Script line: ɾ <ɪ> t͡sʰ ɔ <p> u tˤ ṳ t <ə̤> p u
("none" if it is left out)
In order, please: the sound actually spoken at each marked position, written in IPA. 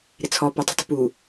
ɪ, p, ə̤

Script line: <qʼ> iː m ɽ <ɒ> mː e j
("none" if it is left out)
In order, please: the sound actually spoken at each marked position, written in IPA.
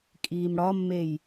kʼ, ɒ

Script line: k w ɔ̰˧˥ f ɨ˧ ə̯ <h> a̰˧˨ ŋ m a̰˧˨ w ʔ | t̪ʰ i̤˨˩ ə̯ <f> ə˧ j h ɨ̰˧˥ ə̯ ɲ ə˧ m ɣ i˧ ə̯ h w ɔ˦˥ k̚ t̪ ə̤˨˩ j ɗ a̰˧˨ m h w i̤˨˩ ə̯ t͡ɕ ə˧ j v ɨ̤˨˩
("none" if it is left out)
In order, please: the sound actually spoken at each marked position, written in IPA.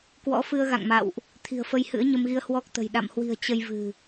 ɣ, f

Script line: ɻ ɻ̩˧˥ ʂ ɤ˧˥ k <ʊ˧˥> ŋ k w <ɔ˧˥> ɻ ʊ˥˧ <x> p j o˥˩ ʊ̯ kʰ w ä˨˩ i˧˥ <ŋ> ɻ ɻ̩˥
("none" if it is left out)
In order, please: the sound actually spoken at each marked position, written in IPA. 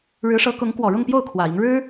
ʊ˧˥, ɔ˨˩, ŋ, ŋ

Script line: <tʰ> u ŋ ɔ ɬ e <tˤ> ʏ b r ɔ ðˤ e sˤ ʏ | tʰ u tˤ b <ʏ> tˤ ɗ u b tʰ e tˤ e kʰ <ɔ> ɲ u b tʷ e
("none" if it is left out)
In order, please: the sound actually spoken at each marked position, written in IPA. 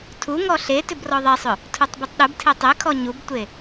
tʰ, t, u, ɔ

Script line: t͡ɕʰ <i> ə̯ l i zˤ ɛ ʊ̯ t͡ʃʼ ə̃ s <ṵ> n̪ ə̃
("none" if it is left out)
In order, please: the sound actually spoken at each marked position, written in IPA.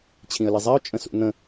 ĩ, ṵ

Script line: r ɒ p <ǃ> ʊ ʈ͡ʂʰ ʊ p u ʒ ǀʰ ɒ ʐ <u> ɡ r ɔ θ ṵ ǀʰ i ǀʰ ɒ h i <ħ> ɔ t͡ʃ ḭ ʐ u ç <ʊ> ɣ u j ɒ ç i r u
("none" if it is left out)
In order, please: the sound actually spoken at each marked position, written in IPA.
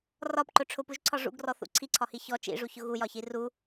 ǃ, ṵ, ç, ʊ

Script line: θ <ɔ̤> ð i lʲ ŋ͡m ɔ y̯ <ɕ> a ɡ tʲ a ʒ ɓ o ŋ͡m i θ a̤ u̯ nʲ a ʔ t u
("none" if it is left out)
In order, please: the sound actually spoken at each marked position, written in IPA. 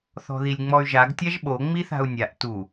ɔ̤, ʒ

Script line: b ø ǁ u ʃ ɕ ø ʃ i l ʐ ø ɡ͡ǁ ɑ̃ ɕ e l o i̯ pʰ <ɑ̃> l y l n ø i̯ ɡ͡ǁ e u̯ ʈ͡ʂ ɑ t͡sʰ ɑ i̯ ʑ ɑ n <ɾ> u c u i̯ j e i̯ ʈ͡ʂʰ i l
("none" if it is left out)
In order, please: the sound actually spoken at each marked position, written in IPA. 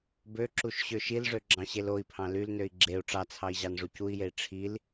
ɑ̃, ʐ

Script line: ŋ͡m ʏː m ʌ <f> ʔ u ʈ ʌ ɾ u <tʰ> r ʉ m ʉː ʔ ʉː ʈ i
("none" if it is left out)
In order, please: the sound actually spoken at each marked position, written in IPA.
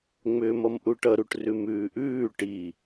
m, ʈ

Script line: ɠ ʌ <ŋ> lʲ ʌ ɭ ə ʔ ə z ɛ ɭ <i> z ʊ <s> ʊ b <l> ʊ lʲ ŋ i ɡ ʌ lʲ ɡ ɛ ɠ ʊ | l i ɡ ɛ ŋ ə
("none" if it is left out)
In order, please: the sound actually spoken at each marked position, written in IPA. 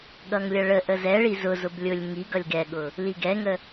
ŋ, i, z, lʲ

